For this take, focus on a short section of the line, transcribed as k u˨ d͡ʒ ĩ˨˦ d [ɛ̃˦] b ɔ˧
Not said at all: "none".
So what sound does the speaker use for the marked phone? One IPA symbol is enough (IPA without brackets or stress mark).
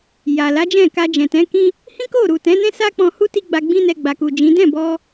ɛ̃˦˨